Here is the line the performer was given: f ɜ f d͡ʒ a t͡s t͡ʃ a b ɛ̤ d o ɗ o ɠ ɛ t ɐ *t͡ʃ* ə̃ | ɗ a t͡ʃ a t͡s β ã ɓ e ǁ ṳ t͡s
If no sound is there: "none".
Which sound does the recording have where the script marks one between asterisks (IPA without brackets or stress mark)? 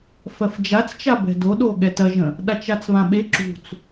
ʒ